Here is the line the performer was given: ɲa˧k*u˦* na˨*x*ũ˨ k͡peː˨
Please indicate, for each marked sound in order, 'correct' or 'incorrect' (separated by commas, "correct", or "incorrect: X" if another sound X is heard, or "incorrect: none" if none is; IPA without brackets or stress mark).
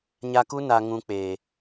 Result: correct, incorrect: ŋ